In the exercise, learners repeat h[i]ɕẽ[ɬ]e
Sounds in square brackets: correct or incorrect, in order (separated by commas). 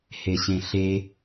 incorrect, correct